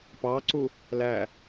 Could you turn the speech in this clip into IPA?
pɑǀu | læ

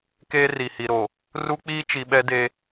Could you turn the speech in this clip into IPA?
keː˦ri˨hi˨ɾo˨ | ru˦k͡piː˦t͡ʃi˨ ɓɛ˦de˦

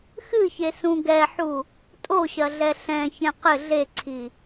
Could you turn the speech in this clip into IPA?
xɨçe sũɡɛħu | tʼoɕɐ ɮɛɬɛ̃çɛ̃ qɘ ɮeǀʰi

